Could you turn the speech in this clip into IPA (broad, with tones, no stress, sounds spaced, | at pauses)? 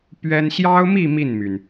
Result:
p ɥ ɛ˥ n ɕ j ɑ˥ ʊ̯ m i˥˧ m i˥˩ n m y˩ n